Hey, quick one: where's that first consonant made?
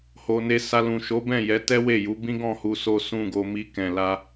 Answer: throat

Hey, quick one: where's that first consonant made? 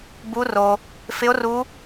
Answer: lips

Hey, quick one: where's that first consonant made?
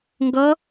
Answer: velum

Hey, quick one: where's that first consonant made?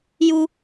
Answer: palate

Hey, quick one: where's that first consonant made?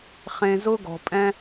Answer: uvula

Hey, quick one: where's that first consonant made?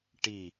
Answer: retroflex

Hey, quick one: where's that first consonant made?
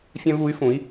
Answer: lips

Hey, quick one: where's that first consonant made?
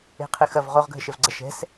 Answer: uvula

